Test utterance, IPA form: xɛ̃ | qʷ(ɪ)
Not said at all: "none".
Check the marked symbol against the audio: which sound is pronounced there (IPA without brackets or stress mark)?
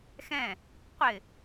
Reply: ɪ